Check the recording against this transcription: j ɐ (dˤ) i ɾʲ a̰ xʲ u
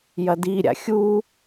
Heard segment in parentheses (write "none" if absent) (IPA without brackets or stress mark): d